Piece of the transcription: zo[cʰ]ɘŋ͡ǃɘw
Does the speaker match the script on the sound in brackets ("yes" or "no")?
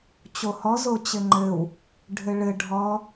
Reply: no